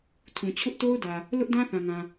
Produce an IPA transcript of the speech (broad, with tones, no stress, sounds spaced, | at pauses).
tʰ ũ˨ t͡ɕʰ ʊ˦ ʔ t o˦ ʊ̯ d ä˨ | l ʊ˦ ʔ d ã˦ θ ã˨ ŋ ã˨